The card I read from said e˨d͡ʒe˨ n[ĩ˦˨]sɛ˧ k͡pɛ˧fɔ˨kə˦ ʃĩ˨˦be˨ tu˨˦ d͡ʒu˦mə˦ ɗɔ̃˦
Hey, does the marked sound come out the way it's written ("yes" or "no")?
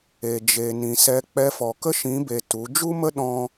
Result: no